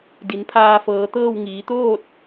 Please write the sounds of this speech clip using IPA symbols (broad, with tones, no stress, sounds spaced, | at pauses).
d i˩˧ n pʰ aː˧ f ɤː˩˧ t̪ ɤː˥˨ w ŋ iː˩˧ t̪ oː˥˨ t̚